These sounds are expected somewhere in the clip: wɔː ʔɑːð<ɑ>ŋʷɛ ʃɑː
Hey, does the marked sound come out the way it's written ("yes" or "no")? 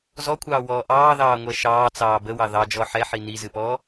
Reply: no